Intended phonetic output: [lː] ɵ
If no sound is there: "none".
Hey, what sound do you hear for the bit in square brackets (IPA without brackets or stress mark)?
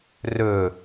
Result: r